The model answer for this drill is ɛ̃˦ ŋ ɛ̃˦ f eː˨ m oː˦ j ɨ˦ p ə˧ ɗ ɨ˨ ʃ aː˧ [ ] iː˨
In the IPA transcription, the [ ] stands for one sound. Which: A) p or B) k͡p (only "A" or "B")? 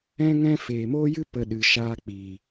B